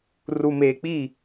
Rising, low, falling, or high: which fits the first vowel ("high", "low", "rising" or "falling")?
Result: low